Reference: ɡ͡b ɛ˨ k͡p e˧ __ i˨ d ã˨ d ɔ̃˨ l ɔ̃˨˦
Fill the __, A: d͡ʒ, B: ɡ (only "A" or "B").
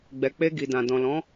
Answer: B